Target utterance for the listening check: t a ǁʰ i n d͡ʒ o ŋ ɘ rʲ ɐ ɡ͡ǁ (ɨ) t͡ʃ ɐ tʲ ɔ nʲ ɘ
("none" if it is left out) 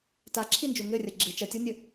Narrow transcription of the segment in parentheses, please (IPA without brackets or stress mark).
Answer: ɨ